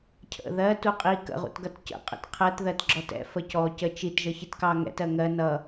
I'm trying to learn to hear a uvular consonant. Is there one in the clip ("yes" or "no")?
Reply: yes